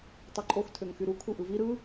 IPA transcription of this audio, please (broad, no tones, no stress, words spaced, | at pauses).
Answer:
tˤuǃʼox tʰøŋxyɾu kʰuʔɯvi ɾɯ